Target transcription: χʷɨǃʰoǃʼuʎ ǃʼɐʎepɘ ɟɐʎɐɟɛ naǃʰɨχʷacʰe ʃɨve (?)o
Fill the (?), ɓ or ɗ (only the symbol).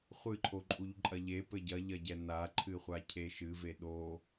ɗ